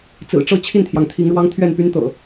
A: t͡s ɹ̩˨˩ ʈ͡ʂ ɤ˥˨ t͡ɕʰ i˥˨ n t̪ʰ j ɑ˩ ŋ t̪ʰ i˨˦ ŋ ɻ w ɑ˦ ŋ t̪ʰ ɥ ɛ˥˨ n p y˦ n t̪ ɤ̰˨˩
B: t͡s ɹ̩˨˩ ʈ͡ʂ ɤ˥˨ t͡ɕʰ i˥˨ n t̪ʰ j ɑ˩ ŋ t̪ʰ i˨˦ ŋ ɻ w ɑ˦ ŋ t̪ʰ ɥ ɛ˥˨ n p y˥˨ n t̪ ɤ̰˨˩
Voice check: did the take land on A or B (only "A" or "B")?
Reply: A